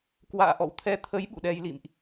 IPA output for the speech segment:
k w a̰ː˧˨ ʔ ɔ̰˧˨ w t̪ʰ ɛ˧ t̪ʰ ə˨˦ j ɓ ṵ˧˨ ɗ ɛ˧ j l ḭ˧˨ m ʔ

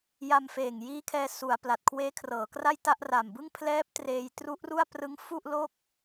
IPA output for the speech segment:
j a˧ m f eː˨˩ ŋ j iː˦˥ kʰ ɛː˧ s u˩˦ a̯ p l a˨˩ t̚ kʰ w eː˦˥ kʰ r ɤː˩˦ k r a˥˩ j t a˥˩ ʔ r a˨˩ m b ɯ˥˩ ŋ pʰ l ɛː˦˥ p̚ t r eː˧ j t r u˦˥ ʔ r u˥˩ a̯ p r ɯ˦˥ ŋ f u˥˩ ʔ l o˥˩ k̚

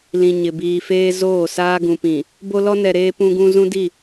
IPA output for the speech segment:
l ĩ˨ ɲ ɪ˨ b iː˨ f eː˦ z oː˦˨ s aː˦ ɡ ũ˨ p ĩ˨ | b o˦ l ɔ˦ n ɛ˨ ɾ eː˦ p ũ˦ ɡ ũ˦ z ũ˦ d i˦˨

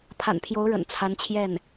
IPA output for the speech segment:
pʰ a̰˨˩ n pʰ j o˧˥ ʊ̯ ɻ ə̰˨˩ n t͡sʰ a˧˥ n t͡ɕʰ j ɛ˥˩ n

